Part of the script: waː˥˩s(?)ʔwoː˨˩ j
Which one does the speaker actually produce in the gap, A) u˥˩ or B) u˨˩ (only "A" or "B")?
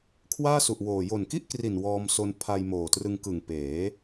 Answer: B